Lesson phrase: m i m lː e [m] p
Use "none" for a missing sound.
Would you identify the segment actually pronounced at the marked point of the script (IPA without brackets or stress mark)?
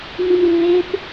none